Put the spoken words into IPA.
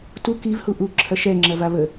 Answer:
t u k i v h u ʔ u ǁʰ ɐ ʃ ɛ ŋ͡ǁ ɐ v a β ə

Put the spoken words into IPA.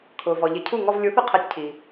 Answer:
kʰ ʊː˩ v ɔ˩ ʎ ɪ˩˥ cʰ u˥˩ ŋ ɔ˧ v lʲ u˩˥ θ ʊ˧ qʰ ɛ˩˥ tʲ cʰ i˩

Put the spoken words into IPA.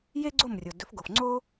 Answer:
j e˥ ɡ͡ǀ o˥˩ m rʲ o˩ d ɵ˩˥ f ɡ o˩ f ŋ͡ǀ o˥

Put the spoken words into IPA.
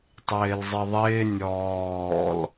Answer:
tˤ ɪː l zˤ i ðˤ ɪː nʲ ɔː l

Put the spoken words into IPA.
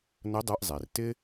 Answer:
n ə˧˥ dˤ ɛ˧ ʔ zˤ e˩ r t ɪ˥

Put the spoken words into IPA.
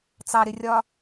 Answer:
t͡s ɑ ɾ ɪ rʲ ɒ

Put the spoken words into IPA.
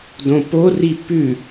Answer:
d õ p o r i p ʉ

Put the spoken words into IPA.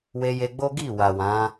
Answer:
w e˧ j e˧ ɡ͡b o˦ ɡ i˦˨ w a˨ w ã˨˦

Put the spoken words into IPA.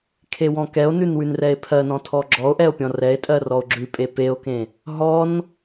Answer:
kʰ e w ɔ̃ k ɛ o̯ n ʉ n w ʉ n r ɛ e̯ pʰ ɜ n ɔ̃ tʰ ɔ ɡ͡ǁ ɔ o̯ ʔ ɛ o̯ pʲ ɔ̃ r ɛ e̯ tʼ ɜ r ɔ o̯ ɡ͡ǁ ʉ pʼ e p e o̯ k ẽ | ɦ ɔ n

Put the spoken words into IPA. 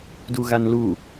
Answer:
d u ɣ a n l u

